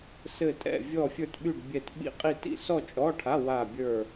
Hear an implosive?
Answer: yes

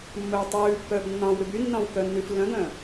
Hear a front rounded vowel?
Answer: yes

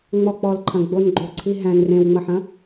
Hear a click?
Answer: yes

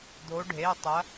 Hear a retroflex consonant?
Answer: yes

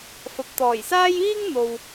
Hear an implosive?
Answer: no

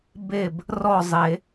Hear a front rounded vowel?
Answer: no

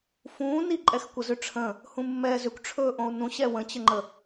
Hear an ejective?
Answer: yes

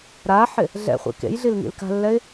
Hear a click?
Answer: no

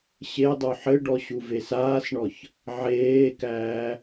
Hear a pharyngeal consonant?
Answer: yes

